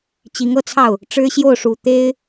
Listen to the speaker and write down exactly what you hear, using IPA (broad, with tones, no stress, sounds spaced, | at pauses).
t͡ɕ i˧˥ ŋ ɤ˥˧ t͡sʰ ɑ˥˩ ʊ̯ | ʈ͡ʂ ɻ̩˥ ɕ j o˥˩ ʊ̯ ʂ u˨˩ t̪ e˥ ɪ̯